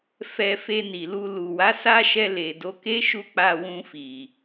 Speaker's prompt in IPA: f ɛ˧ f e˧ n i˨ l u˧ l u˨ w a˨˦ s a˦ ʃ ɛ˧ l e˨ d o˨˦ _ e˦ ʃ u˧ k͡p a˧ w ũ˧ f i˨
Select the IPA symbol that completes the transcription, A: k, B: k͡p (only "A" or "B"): A